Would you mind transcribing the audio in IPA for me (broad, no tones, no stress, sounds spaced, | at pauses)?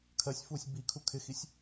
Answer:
kʰ ɜ sʲ f uː sʲ b i kʰ u kʰ ɪ x i sʲ